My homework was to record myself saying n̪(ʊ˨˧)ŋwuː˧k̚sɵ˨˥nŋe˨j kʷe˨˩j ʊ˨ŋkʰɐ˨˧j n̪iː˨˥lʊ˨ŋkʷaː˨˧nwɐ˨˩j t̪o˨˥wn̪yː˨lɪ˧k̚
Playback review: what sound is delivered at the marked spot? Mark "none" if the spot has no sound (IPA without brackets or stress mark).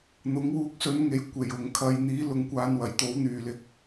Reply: ʊ˨˥